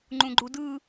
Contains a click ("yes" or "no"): yes